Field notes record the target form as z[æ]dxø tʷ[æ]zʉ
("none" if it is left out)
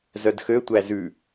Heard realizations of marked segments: œ, æ

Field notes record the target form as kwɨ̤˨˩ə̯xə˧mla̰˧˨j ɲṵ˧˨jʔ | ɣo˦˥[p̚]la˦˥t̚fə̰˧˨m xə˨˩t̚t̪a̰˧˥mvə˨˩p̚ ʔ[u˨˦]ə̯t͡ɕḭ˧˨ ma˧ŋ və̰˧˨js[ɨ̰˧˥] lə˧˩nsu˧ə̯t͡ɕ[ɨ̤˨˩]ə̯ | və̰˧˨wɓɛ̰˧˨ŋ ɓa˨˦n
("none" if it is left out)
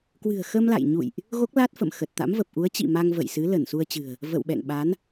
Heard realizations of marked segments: k̚, u˨˦, ɨ˨˦, ɨ̤˨˩

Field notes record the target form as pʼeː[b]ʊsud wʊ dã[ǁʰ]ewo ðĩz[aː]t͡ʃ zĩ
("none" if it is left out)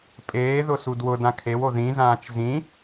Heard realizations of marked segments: ð, kʰ, ãː

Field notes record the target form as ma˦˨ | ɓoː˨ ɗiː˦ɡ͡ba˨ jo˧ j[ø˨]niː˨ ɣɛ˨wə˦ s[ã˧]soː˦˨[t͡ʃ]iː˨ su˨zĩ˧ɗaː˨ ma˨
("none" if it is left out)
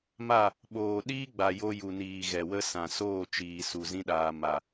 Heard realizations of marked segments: u˨, ã˨, t͡ʃ

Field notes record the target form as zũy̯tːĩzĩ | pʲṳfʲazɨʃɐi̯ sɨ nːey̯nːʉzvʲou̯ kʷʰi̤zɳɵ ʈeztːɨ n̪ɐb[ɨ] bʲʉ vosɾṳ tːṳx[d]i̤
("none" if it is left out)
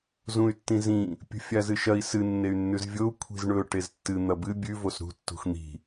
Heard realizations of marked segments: ɨ, n̪

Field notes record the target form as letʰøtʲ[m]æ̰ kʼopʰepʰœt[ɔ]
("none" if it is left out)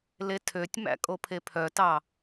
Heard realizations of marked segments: m, ɑ

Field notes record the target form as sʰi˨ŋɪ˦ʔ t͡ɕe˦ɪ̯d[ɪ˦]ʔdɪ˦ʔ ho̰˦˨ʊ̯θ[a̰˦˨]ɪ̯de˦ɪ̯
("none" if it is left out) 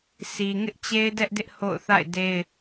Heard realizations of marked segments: ɛ˦, a̰˦˨

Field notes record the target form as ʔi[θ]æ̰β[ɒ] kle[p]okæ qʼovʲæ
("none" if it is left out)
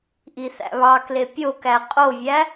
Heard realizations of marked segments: θ, ɑ, pʲ

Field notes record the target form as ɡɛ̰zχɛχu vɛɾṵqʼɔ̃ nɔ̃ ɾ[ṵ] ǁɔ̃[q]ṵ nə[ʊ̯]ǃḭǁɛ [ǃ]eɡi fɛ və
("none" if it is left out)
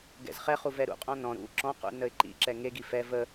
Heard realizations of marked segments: ṵ, q, ɪ̯, ŋ

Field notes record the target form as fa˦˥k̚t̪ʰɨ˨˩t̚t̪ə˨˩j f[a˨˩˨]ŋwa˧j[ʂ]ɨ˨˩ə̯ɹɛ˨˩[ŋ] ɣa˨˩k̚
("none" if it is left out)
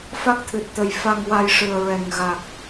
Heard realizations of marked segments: a˧, ʂ, ŋ

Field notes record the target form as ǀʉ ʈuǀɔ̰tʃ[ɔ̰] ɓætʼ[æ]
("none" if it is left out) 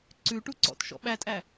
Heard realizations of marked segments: ɔ̰, æ

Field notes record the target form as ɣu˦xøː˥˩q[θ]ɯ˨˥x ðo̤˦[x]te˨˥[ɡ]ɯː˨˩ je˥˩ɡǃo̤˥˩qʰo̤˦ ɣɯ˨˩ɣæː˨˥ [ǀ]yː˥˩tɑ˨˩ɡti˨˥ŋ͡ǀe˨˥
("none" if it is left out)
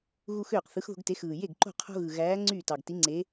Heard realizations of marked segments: θ, ɡ, x, ŋ͡ǀ

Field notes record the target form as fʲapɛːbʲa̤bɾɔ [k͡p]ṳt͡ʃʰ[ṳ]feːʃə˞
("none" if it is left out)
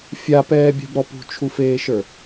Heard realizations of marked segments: p, u

